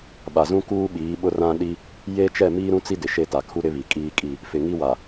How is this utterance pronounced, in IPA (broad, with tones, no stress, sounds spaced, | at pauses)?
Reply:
ɓ a˨ z ũ˦ k uː˦ ɓ iː˨˦ ɓ ʊ˦ r ã˦ ɗ i˦ | j eː˦ t͡ʃ ɛ˦˨ m iː˦ ɾ ũ˦ t͡s i˦ d ɪ˨ ʃ e˦ t a˨ kʰ u˦ ɾ ɪ˦ β i˨ kʼ iː˦ kʼ i˦ | f ɪ˨ ŋ i˦ w a˨